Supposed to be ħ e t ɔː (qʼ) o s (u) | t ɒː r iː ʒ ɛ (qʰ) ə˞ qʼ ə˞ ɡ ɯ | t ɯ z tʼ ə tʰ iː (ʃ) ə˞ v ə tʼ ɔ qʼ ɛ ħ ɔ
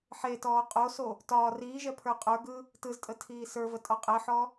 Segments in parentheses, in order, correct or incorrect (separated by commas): correct, incorrect, incorrect, incorrect